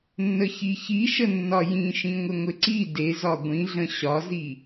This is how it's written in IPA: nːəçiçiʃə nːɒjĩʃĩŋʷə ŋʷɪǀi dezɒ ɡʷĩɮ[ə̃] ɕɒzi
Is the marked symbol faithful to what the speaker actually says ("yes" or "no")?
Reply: yes